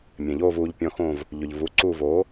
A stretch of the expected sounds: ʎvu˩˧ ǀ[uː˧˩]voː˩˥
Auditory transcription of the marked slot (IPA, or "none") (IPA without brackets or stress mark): uː˧˩